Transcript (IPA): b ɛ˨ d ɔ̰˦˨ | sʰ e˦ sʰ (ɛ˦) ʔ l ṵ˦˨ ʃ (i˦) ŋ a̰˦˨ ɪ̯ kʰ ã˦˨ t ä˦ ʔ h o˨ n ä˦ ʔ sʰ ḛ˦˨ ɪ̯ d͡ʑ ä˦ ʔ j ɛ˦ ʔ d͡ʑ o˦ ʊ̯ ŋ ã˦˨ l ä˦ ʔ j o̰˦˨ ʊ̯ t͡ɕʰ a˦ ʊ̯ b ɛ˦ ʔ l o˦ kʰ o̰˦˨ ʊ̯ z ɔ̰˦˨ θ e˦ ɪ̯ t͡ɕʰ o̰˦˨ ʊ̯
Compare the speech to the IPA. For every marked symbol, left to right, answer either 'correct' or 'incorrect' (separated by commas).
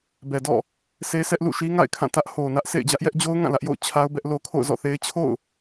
correct, correct